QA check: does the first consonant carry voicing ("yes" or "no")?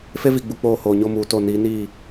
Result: no